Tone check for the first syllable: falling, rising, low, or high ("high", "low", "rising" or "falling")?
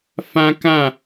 high